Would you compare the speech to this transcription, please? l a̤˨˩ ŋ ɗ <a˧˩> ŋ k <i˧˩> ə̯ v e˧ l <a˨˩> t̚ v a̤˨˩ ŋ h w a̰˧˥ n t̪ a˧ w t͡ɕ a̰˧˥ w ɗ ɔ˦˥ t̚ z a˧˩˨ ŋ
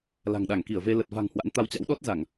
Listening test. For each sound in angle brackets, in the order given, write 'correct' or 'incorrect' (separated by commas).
correct, correct, incorrect